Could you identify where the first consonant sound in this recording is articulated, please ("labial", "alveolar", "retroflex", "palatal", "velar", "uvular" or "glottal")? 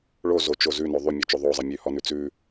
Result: retroflex